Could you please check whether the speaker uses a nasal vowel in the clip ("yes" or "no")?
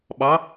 no